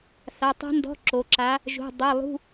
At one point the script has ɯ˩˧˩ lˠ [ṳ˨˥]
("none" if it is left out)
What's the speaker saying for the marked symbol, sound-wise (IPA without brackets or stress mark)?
ṳ˧˥˧